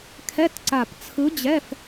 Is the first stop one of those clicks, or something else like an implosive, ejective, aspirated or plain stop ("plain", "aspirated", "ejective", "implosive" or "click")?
aspirated